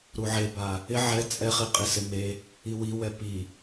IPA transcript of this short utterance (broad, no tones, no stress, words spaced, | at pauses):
ɾuʕeba | ɪ ʕɛ t͡sʼɛχiqʼisɪ me | iwiwɛ pi